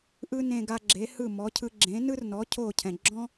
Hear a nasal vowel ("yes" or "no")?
yes